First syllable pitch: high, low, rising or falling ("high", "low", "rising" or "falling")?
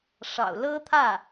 low